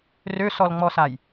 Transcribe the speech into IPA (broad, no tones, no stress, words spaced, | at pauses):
røsɔlŋ͡mɔsaj